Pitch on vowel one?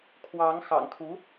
rising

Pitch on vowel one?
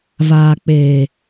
low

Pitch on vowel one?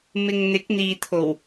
low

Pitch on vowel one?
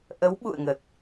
rising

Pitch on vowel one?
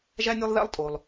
high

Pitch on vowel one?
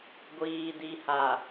low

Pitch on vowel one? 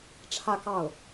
falling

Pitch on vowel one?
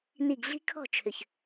falling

